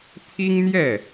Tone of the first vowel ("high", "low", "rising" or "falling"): high